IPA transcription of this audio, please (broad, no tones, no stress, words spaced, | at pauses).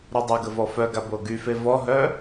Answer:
ɾudˤøɡə vɔfœɡa boɡyfe vɔɦœ